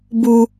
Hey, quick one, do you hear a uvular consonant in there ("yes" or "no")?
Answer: no